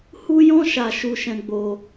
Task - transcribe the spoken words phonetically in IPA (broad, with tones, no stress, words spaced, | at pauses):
hu˦jɔ̃˦ ʃa˦ʃu˦ʃɛ̃˦ ɡ͡bo˦